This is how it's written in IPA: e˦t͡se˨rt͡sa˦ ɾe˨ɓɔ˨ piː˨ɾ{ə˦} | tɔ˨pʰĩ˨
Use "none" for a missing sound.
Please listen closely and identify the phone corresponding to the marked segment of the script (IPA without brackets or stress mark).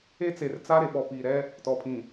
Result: ɛ˦